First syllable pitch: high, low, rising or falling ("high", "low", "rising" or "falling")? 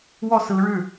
falling